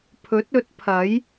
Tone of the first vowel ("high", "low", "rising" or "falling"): rising